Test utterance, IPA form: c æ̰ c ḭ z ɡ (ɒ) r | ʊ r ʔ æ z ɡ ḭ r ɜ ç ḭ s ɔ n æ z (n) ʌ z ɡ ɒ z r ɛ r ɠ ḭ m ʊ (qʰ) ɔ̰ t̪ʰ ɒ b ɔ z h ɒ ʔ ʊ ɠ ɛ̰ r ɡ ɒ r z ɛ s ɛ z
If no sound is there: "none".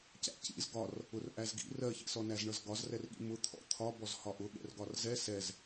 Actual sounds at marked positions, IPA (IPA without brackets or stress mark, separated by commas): ɒ, ɳ, t̪ʰ